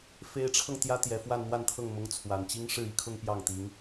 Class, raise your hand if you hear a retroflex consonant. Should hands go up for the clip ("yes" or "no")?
yes